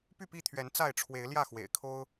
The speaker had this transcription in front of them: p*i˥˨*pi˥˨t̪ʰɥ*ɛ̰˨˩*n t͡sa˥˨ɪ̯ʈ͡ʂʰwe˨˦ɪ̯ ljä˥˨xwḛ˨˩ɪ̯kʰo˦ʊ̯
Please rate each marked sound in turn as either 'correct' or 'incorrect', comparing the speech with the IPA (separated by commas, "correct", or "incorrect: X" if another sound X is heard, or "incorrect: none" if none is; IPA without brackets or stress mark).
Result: incorrect: y˥˨, incorrect: ɛ˨˦